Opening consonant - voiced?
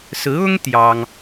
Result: no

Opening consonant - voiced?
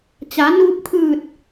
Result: no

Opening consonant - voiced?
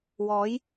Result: yes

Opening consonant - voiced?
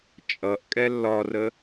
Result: no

